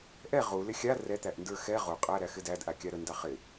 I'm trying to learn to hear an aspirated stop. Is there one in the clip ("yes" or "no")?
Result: no